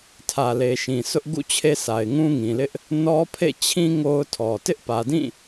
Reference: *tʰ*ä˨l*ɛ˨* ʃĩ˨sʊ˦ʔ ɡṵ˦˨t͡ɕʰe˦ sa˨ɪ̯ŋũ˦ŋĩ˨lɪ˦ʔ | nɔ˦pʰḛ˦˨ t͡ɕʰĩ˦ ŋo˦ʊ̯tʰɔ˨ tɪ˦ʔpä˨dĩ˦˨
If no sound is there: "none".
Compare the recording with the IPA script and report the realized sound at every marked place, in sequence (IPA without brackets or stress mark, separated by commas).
tʰ, e˨